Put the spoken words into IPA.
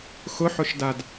x ʊ ħ ʊ ʃ d a d

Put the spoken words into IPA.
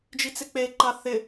d͡ʒ i t͡s ɪ k͡p e ǃ a θ ɪ

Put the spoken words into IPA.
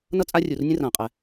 n ʌ˥ t͡sʼ a˥ rʲ u˧ r nʲ ə̃˥ r ãː˧ qʼ ɛ˧

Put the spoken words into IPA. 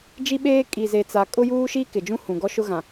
d͡ʒ i˦ ɓ eː˦ kʼ i˨ z e˨ t͡s a˨ kʼ ʊ˦ j uː˦ ʃ i˦ k ɪ˨ d͡ʒ ũ˦ h ũ˨ ɡ ɔ˦ ʃ ʊ˦ ɣ ã˨

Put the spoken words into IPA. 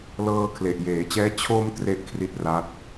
l ɤː˧ kʰ l e˨˩ ʔ j eː˩˦ t͡ɕ ɛː˦˥ t͡ɕʰ o˧ m t r e˥˩ ʔ kʰ r i˦˥ t̚ r aː˦˥ t̚

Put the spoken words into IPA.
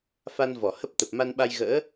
f a˧ n v ɔ˧˩ h ə˦˥ p̚ t̪ ə˨˩ p̚ m a˧ n ɓ a˧ j ɣ ə̰ː˧˥

